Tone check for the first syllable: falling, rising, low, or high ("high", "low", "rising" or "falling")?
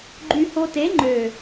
low